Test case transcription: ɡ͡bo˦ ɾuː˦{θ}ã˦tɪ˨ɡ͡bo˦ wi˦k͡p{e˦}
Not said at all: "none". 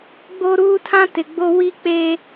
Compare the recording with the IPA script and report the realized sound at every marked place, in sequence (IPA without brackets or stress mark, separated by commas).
tʰ, e˦